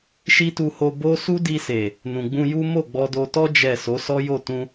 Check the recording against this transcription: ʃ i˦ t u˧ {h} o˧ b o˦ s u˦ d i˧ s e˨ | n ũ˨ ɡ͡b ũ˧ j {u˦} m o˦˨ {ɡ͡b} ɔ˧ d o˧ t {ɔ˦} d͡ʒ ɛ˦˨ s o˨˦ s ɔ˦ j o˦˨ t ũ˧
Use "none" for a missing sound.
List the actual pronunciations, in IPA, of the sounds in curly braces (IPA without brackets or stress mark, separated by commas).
h, u˦, ɡ͡b, ɔ˦